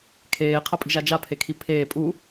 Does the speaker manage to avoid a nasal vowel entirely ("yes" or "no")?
yes